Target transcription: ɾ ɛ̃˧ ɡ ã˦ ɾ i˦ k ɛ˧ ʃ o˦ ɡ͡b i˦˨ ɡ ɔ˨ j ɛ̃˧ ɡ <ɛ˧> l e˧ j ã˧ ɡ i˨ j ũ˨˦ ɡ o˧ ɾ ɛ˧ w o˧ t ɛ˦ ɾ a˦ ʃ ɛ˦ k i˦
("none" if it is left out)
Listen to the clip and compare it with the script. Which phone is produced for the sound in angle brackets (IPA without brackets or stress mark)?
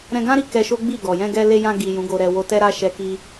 ɛ˧